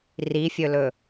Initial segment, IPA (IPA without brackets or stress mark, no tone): r